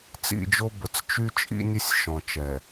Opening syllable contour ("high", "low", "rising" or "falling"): falling